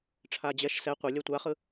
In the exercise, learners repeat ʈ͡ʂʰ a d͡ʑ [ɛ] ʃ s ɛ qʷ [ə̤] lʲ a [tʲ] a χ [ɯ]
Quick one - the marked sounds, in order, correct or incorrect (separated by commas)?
correct, incorrect, incorrect, correct